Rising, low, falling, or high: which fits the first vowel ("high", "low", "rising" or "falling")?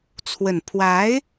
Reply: low